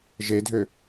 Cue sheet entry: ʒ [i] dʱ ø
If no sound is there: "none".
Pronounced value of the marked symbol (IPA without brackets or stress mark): e